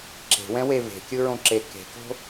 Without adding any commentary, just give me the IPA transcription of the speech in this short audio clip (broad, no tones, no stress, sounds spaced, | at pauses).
ǁ e̤ w ɛ̃ w e v e̤ kʲ ɯ ɹ õ ǁ e k e̤ k o̤